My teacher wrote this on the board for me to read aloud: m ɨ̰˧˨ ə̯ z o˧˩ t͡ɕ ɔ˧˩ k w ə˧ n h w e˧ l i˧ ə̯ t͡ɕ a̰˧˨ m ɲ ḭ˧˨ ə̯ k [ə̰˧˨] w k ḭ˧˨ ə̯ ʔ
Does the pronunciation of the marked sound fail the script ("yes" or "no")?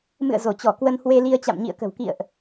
yes